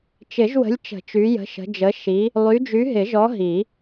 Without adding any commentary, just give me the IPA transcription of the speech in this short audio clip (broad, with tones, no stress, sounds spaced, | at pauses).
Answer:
t͡ʃ ɪ˨˩˦ ʒ w ə̤˨˦ lʲ t͡ʃ ə̤˨˩˦ t͡ʃ y˨˦ j ə̤˨˦ ʃ ə̤˨˦ d͡ʒ ə˨˦ ʃ i˨˦ | lˠ y˨˦ d͡ʒ y˨˦ ɦ ɪ˨˩˦ ʒ ɔ˨˦ ɦ i˨˩˦